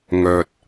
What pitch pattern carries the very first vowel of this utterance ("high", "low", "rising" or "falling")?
low